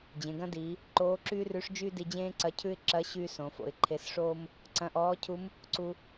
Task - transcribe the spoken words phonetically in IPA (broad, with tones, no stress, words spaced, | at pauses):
d͡ʑẽ˩˧ɡɐ̃˥diː˩˧ | ǃoː˧˥ǁyː˥rʉ˧˥ʂd͡ʒyː˥ di˧d͡ʑẽː˥ǀɐ˧˥cʰʉ˥ɪ̯ ǁɐ˧˥ ɕyː˥sõ˩˧ fo̰˩˧ɪ̯ǃʰe˧sʂoː˥m | ǀɐ̃˧ʔɔː˧˥cʰu˧˥m | ǀu˧